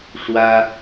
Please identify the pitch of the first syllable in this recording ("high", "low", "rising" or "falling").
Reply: high